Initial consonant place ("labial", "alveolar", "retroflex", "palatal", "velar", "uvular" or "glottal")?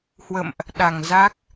glottal